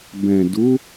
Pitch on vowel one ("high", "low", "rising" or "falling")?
low